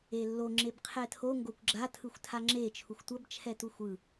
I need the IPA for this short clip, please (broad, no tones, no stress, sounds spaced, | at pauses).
e lː o ŋ͡ǁ e b qʰ ɛ tʰ o ŋ ɡ o kʷ ɡ͡ǁ a tʰ ɯ xʷ tʰ a ŋ͡ǁ e t͡ʃʰ u xʷ tʷ ʌ b t͡ʃʰ ɛ t u xʷ ɯ